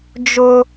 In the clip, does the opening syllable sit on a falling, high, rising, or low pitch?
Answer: high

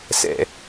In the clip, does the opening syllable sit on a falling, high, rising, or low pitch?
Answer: low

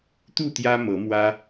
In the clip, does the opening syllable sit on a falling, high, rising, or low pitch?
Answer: falling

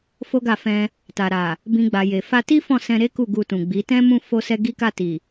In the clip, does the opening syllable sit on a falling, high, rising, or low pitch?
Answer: high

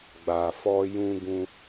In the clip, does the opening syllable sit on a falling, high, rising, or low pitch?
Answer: low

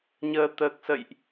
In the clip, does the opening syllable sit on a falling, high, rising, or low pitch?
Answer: low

